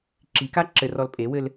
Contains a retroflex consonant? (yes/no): no